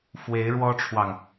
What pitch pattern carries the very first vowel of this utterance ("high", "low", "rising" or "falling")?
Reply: rising